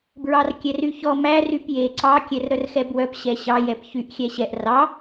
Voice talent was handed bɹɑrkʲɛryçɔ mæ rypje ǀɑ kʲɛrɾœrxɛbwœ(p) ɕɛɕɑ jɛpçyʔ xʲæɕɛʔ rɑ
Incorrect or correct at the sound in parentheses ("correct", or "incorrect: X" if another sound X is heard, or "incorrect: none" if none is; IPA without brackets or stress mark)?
correct